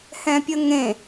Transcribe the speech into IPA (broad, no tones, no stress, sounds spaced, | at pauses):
h ɛ̃ pʲ ə ŋ ẽ